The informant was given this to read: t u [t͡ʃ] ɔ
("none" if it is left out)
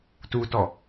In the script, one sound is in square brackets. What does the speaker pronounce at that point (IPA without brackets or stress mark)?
t